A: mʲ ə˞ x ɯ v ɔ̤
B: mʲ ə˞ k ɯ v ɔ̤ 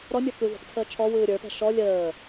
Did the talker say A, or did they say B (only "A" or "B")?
B